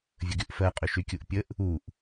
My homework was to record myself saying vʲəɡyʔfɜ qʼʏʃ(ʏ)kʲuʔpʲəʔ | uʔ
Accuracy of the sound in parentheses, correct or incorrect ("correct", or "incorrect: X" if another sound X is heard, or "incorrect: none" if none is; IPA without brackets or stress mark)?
incorrect: y